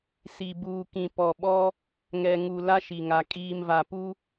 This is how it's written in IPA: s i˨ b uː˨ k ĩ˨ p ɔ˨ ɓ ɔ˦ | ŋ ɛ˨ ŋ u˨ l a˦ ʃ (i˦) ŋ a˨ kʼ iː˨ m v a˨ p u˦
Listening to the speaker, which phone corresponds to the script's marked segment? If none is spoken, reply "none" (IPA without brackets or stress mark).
i˨